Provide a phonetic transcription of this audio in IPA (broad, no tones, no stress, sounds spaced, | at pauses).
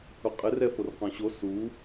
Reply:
ʊ qʼ ɪ r ɛ f o r q ɔ̃ ɕ o s u